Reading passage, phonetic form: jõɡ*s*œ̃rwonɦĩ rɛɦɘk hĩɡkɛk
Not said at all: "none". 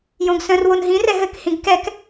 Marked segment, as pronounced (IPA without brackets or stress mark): s